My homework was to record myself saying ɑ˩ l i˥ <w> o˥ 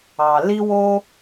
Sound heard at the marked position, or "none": w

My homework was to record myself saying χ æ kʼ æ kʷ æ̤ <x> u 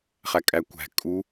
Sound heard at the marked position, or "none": kʼ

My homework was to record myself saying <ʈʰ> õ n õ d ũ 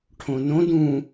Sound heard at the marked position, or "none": ʈʰ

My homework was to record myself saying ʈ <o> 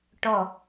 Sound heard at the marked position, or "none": ɔ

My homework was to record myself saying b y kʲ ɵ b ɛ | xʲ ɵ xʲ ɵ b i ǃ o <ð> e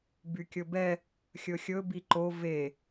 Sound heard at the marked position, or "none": v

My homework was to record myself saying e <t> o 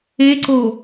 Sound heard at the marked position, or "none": ǀ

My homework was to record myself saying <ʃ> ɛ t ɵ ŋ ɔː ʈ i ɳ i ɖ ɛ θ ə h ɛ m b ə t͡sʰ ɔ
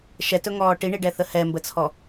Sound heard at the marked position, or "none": ʃ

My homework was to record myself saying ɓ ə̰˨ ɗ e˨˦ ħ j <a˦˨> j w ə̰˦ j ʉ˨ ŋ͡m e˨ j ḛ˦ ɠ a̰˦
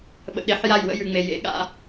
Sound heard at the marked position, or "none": a˦˨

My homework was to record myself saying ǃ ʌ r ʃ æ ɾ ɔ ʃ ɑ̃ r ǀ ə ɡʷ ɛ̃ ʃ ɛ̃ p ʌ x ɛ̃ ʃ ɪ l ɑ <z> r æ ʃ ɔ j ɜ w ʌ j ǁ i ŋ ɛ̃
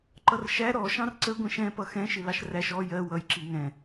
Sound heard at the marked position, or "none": ʃ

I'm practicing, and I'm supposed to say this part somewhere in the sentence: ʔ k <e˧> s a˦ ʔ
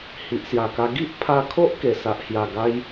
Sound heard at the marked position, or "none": e˧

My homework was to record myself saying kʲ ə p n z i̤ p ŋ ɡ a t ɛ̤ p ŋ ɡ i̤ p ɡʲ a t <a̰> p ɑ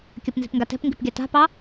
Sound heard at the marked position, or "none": a̤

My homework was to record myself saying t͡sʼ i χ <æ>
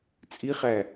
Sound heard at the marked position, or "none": æ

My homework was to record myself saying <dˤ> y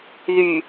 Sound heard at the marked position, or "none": ð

